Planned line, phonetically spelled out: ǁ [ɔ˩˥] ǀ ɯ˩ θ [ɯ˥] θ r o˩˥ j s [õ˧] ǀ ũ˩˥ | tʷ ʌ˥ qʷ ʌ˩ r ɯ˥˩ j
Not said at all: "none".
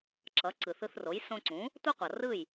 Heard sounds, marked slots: ʌ˩˥, ɯ˧, õ˧

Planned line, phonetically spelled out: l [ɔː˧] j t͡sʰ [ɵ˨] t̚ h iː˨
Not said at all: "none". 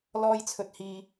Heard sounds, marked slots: ɔː˧, ɵ˨

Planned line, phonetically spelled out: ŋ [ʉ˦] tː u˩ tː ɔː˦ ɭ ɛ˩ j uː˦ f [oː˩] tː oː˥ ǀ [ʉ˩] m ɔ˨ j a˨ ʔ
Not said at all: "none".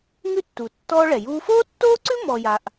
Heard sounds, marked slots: ʉ˦, oː˥, ʉ˥

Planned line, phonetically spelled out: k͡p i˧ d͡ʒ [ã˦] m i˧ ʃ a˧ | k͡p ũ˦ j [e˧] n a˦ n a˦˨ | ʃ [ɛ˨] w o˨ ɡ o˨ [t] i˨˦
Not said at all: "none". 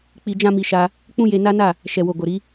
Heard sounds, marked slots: ã˦, e˧, ɛ˨, ɾ

